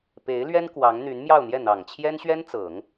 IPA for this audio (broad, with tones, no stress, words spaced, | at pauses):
pe˧˥ɪ̯lɥɛ˥n kwɑ˧˥ŋn̪y˧˥n mjɑ˥˧ʊ̯n̪jɛ˥˩n̪ɑ˨˩ŋ t͡ɕʰjɛ˥nɕɥɛ˥nt͡sɤ˨˩˦ŋ